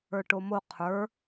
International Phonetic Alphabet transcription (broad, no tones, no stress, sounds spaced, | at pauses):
ə˞ ʈ o m o qʰ ə˞